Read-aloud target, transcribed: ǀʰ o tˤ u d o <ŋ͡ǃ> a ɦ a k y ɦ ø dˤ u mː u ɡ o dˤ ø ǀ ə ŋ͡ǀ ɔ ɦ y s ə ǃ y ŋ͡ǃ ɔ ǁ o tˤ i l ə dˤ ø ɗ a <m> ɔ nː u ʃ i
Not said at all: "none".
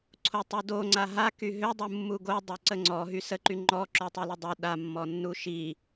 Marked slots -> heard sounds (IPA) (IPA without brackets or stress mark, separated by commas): ŋ͡ǀ, mː